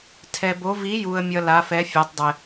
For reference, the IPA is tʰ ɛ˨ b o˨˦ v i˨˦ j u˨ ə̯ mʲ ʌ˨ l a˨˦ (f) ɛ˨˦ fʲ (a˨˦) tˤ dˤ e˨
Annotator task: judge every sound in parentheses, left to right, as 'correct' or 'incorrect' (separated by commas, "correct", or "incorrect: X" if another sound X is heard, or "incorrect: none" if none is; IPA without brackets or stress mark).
correct, correct